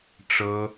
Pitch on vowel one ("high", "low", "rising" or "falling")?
high